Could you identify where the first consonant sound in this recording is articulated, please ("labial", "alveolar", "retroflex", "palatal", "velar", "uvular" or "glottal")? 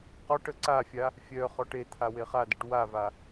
uvular